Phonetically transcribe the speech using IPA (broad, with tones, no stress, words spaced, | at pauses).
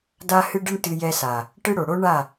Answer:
da˧hɨ˧ɖɨ˧ɳ tɨ˧jɛ˧sa˨ | ʈɨ˧ɽo˨ ɽo˦ ɳa˦˨